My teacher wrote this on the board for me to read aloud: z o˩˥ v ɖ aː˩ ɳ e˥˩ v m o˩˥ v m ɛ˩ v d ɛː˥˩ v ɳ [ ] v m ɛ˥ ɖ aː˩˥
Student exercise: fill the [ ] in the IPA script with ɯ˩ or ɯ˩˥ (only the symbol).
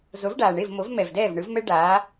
ɯ˩˥